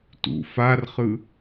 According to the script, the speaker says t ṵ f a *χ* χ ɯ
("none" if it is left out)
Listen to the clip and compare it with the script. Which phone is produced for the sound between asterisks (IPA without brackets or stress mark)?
r